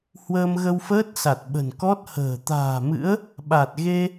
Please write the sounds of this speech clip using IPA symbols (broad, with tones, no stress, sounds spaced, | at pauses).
h w əː˧ m ɣ ə˧ w f əː˦˥ t̚ s a˨˩ t̚ ɓ ə̤˨˩ n k ɔ˦˥ t̚ h ə̤ː˨˩ t̪ a̤ː˨˩ m ɨ̰˧˥ ə̯ | ɓ a˨˩ t̚ ɣ e˧